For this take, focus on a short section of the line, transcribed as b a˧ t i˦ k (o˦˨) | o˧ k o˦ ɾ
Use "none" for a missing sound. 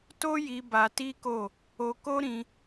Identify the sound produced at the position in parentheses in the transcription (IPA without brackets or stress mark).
o˦˨